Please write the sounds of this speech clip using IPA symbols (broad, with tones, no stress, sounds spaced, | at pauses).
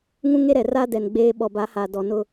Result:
ŋ ũ˦ ŋ e˦ ɾ ɛ˨ r a˦ d ɛ˨ n ɡ͡b eː˦ ɓ ɔ˨ b a˨˦ h a˨ d ɔ˨ n ʊ˦